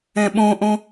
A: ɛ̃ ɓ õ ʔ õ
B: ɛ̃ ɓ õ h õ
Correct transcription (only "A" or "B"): A